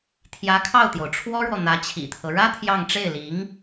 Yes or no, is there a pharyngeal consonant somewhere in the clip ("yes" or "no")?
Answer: no